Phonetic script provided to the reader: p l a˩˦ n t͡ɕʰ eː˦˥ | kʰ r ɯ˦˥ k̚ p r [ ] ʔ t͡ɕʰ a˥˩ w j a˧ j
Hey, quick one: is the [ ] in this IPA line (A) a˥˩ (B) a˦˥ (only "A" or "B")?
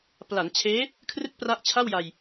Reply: B